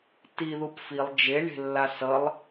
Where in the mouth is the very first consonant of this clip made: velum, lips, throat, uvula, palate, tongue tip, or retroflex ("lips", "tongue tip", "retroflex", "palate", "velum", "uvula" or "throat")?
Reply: tongue tip